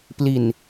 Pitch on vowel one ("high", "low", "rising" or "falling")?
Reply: low